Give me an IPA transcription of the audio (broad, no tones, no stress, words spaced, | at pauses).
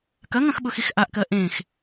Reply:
kɐŋɐ̃xɓʊxix ʔaʔkɜ ʔẽx